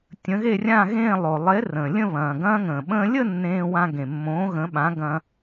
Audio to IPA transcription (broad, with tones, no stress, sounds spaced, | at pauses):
tʲ ə̃˨˥ ɣ e˥˧ rʲ ã˥˧ ɣ ẽː˥˧ lˠ o˩ lˠ e˨˥ r ə̃ː˩ lʲ ə̃˥˧ β ɐ̃ː˩ ɡ ɐ̃ː˧ ŋ ə̃ː˩ ɓ ə̃ː˧ lʲ ə˥˧ nː ẽː˧ w ã˧ ɡ ẽ˩ mː õ˨˥ ɣ ə̃˨˥ ɓ ã˨˥ ɡ ɐ̃˧